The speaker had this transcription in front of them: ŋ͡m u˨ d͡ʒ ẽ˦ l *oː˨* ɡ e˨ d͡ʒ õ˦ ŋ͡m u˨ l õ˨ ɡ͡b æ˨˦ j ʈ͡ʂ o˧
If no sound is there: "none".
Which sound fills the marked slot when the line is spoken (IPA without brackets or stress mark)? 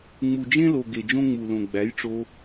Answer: o˨